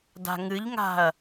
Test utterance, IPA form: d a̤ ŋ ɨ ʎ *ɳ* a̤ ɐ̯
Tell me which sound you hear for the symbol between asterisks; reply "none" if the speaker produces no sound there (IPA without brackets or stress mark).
ŋ